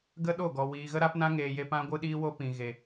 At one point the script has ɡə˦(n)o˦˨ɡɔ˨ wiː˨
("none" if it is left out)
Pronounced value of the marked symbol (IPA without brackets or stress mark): ɗ